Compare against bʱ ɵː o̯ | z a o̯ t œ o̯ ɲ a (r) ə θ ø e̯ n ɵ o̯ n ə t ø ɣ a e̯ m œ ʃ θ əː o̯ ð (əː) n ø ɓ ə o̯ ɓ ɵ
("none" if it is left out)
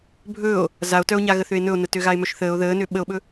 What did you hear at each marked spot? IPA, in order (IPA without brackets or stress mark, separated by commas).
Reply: ɣ, əː